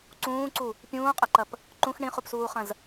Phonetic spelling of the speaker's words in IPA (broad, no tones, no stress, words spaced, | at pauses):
ǀũːǀu | pʲũːqʼɐǃɐp | ǃũx ɳĩχupsuːχɐ̃z